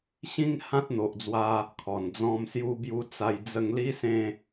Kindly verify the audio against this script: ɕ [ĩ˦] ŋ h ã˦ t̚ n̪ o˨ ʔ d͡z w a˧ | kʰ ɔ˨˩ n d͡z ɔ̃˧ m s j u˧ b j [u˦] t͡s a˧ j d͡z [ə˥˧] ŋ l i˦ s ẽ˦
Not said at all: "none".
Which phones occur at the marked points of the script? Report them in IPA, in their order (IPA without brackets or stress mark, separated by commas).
ĩ˦, u˧, ə˧